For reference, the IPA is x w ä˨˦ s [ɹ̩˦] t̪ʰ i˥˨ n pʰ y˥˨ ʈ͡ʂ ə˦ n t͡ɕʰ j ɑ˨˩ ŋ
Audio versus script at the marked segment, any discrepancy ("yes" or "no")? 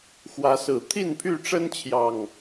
yes